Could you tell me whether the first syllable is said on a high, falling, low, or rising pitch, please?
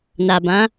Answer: low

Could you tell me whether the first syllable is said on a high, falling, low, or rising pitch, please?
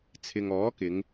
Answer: low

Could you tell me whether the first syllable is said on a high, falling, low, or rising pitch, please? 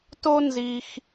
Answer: high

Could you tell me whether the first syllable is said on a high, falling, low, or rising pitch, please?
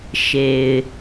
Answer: low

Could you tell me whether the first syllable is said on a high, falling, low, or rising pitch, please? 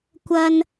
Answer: high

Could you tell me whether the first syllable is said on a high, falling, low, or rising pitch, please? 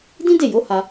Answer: high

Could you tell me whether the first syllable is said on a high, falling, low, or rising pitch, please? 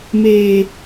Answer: high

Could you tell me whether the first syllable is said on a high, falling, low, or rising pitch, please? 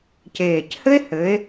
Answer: low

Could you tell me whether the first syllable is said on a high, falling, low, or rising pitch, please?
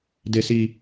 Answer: high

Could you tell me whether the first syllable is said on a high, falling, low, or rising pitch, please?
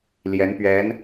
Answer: rising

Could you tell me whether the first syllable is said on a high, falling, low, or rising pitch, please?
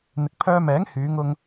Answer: low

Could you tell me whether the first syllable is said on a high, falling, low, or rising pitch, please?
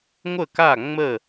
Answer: falling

